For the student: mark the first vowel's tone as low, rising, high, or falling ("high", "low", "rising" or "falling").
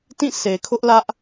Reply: falling